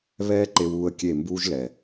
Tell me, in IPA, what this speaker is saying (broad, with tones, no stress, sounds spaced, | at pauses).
β ɛː˦ ǃ e˧ w uː˧ ə̯ kʲ e˦˨ m b uː˦ ʒ l ɛ˨